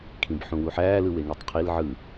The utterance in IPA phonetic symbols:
kʰ ĩ b ħ ũ w u ħ æː l ɯ w e ŋ e tˤ qʰ i l ʕ ɯ

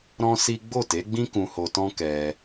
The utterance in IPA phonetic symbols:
ɾ ɔ̃˦ s i˦ ɡ͡b o˦˨ t e˨˦ ɡ͡b ĩ˦ k ũ˧ h o˧ t ɔ̃˦ k ɛ˧

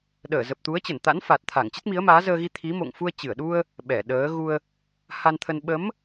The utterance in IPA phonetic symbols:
ɗ əː˧˩ z ə˨˩ p̚ t̪ u˨˦ ə̯ t͡ɕ ə˧˩ n t̪ a̰˧˥ n f a˨˩ t̚ t̪ʰ a˧˩ ŋ t͡ɕ ə˦˥ t̚ m i˨˦ ə̯ m aː˨˦ z əː˧ ɣ i˧ t̪ʰ i˨˦ m o̰˧˨ ŋ f u˧ ə̯ t͡ɕ ɨ˧˩ ə̯ ɗ u˧ ə̯ | ɓ ɛ˧˩ ɗ əː˨˦ ɣ u˧ ə̯ | h a˧ n t̪ʰ ə˧ n ɓ ə˨˦ m

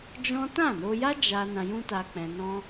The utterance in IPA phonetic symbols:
d͡ʒ ɔ̃˦ t ã˦˨ n o˧ j a˦ d͡ʒ a˦ n ã˧ j ũ˦ t a˧ k͡p ɛ̃˧ n ɔ̃˦

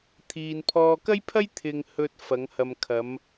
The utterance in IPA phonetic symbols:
t̪ʰ iː˨ n pʰ ɔː˧ k ɐ˥ j pʰ ɐ˥ j t̪ʰ ɪ˨ ŋ h ɵ˧ t̚ f ɐ˨˧ ŋ h ɐ˨ m kʰ ɐ˨˧ m

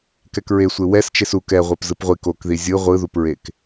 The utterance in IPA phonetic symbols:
k ɛ k ɹ e sʷ e w ɛ s t͡ʃ e s u k ɛ ʁʷ e p z ɯ p ʁʷ i k o k ð i zʲ ɯ ʁʷ ɯ ð u p ɹ e k

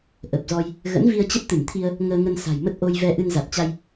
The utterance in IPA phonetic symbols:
ʔ ə˨˩ p̚ z ɔ˧ j | ɣ ə̰˧˥ n v i˧ ə̯ t͡ɕ ə˦˥ p̚ t̪ ɨ˧˩ m t̪ʰ i˧ ə̯ | ŋ əː˧ ŋ ə˧ n s a̤˨˩ j m ə˦˥ t̚ ʔ o˧ j v ɛ˧ ʔ ɨ˧ n z a˨˩ t̚ t͡ɕ a˧ j

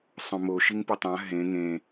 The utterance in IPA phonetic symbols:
sˤ õ m o ʃ i ŋ p ɪ tˤ ã ɦ ẽ ŋ ẽ

